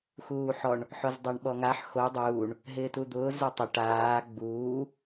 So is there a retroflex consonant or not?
yes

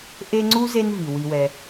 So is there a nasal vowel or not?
no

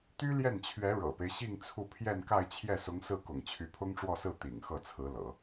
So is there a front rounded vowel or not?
yes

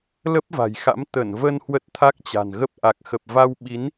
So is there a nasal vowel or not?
no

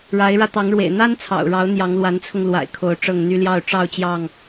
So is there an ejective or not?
no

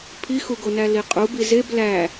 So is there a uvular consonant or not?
yes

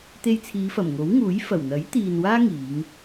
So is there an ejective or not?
no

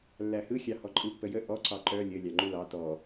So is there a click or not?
yes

